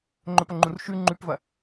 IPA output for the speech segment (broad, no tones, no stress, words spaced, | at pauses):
ŋ͡ǃɵpɐŋ͡ǃũr ʃʉ ŋ͡ǃʉpvɐ